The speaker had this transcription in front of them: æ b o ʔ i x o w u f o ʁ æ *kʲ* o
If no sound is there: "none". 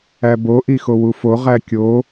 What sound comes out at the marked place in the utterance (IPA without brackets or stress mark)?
kʲ